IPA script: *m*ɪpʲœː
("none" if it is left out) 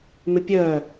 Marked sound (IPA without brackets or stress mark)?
m